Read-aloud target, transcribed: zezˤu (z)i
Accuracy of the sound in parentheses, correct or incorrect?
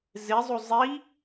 incorrect: zˤ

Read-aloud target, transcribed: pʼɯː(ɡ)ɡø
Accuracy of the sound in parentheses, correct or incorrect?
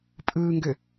incorrect: ŋ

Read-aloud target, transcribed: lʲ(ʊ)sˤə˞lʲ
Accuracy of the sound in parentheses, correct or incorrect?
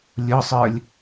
correct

